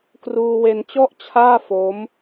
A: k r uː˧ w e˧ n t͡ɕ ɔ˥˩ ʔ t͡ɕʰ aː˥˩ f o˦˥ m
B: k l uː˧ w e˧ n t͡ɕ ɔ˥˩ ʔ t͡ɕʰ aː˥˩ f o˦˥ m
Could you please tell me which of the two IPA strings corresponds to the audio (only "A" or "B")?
A